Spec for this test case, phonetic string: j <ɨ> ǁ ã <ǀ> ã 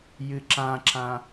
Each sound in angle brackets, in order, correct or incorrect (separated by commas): correct, incorrect